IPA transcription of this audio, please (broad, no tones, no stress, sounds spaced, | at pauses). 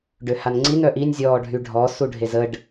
ɖ ø h a n ŋ͡ǀ i n œ ʔ i nʲ zʲ ɔː ɖʱ y ɖʱ ɔ s u ɖʱ e z ə ɖ